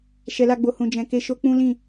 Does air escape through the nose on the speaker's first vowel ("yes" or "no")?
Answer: no